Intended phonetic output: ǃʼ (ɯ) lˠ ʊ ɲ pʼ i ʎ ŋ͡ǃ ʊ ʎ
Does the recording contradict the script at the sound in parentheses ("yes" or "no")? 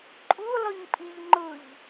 yes